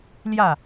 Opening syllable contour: falling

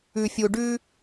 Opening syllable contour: low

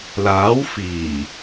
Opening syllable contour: rising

